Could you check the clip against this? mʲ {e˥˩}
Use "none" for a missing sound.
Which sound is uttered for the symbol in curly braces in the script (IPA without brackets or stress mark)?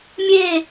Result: e˥˧